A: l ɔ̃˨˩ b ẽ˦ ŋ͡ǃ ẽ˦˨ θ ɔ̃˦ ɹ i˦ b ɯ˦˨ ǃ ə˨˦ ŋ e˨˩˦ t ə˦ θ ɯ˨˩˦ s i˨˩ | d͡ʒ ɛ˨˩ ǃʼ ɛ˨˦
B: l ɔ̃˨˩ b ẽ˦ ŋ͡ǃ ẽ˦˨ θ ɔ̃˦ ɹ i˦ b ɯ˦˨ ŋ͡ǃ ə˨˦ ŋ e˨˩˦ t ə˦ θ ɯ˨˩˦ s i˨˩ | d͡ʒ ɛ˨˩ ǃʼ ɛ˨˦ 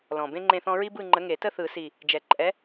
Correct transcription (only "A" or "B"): B